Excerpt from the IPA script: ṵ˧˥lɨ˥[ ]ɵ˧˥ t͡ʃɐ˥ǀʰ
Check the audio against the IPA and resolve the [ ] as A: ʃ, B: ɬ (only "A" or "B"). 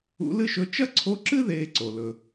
A